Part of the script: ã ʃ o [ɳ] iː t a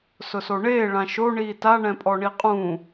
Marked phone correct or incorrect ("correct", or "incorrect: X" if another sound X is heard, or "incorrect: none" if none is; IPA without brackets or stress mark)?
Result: correct